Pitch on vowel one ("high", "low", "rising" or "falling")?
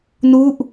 falling